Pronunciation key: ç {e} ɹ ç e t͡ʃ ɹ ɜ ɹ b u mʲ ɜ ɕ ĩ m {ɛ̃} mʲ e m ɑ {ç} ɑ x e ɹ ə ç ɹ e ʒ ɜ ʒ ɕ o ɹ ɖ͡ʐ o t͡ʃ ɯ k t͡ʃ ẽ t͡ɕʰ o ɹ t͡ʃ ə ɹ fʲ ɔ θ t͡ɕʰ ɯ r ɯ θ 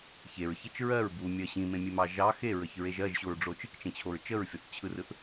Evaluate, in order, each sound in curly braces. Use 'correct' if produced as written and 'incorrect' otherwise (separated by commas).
correct, incorrect, incorrect